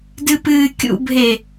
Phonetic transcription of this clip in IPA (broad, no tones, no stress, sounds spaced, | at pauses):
d ɨ p ɨː kʲ ṵ bʱ e